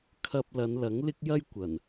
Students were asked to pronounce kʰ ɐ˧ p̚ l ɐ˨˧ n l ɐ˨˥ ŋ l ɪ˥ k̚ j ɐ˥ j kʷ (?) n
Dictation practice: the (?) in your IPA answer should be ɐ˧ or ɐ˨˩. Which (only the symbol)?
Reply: ɐ˨˩